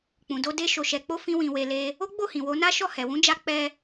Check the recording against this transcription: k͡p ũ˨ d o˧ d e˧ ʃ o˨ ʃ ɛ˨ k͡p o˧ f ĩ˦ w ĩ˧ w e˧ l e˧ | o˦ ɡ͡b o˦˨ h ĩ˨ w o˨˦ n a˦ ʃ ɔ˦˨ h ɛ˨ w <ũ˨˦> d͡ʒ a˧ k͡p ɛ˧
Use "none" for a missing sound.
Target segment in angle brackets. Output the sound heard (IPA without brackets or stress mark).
ũ˨˦